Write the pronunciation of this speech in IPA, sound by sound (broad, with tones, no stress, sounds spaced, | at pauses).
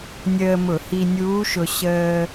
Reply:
nʲ əː˧ m ʊ˧˩˧ h i˧ nʲ uː˧˥ ʃ ʊ˧ ɕ əː˧